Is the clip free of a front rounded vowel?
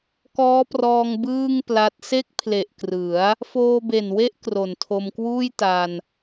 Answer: yes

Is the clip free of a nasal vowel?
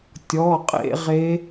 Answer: yes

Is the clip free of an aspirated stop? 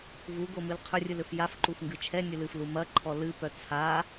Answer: no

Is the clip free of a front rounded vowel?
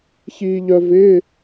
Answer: no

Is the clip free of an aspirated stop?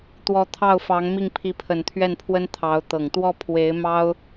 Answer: no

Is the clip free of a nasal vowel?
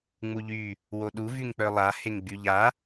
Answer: yes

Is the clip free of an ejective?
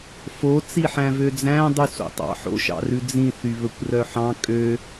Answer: no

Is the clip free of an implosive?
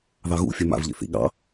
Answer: no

